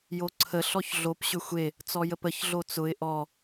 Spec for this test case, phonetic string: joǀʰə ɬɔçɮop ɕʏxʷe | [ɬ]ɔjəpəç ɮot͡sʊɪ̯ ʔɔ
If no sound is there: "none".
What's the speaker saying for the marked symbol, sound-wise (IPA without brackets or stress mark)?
t͡s